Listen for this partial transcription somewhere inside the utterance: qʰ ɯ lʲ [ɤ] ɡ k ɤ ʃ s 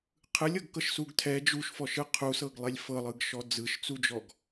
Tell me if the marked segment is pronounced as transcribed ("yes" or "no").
yes